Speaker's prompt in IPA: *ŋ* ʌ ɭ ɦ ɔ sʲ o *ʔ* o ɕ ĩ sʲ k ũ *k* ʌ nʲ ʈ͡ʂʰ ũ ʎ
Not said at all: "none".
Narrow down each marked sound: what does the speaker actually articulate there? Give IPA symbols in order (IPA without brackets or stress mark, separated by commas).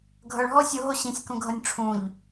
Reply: ɡʱ, ɦ, ɡʱ